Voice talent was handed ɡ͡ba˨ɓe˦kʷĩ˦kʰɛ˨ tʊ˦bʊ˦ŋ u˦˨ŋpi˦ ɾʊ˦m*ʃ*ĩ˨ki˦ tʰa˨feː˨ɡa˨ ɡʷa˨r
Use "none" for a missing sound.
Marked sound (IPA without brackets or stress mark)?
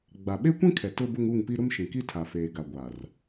ʃ